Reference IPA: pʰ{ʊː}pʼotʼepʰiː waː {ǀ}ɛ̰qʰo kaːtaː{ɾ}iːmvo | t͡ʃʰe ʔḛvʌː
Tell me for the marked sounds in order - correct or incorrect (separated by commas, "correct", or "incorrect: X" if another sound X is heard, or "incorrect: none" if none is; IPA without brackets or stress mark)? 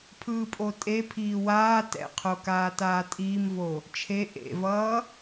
incorrect: ɯː, incorrect: t, incorrect: tʼ